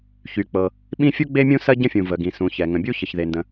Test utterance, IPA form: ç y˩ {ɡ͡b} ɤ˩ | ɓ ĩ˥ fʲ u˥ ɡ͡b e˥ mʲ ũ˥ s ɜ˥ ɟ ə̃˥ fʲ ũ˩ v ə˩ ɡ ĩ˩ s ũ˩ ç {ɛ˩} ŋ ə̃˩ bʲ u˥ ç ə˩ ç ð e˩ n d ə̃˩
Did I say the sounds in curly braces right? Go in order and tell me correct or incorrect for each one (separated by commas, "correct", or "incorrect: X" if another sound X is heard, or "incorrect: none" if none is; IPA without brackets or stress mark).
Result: incorrect: k͡p, correct